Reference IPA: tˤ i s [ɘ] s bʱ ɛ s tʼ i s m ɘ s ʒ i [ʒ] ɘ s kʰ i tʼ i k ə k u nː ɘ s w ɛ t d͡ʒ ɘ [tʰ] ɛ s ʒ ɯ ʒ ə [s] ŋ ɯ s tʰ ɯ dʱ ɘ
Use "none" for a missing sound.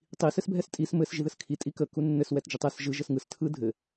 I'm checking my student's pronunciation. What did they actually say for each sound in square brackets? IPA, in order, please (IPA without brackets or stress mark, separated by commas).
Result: ɘ, ð, tˤ, s